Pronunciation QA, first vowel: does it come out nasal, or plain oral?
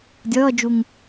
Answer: oral